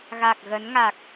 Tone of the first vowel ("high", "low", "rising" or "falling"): low